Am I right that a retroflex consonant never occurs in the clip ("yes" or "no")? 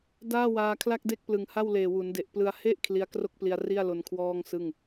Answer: yes